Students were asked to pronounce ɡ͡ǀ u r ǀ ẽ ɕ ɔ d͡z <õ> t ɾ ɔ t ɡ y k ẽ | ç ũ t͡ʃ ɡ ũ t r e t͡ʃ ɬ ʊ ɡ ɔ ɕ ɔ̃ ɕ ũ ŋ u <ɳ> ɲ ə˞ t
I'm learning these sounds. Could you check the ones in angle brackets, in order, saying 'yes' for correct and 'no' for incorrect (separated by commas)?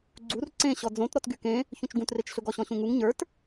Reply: yes, no